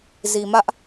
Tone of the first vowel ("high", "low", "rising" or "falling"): low